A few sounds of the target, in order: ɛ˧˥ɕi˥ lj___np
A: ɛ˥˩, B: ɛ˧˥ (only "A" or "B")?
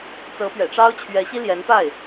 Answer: B